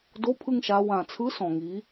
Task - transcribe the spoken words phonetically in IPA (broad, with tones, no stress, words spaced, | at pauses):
do˨˥pʰɯ˧ŋʃa˩˧ wã˨˩t͡sʰɯ˨˥ sɔ̃˨˩ŋi˩˧